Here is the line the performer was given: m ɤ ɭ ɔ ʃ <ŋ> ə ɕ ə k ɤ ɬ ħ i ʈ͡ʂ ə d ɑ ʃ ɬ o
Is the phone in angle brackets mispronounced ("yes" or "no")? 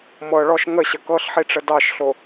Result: no